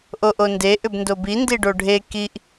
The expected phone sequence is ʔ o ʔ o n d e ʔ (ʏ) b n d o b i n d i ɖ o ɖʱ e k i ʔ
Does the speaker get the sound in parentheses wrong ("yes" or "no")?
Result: no